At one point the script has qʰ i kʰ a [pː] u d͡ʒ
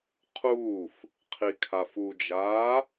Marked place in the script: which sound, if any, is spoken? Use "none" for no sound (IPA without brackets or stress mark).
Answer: f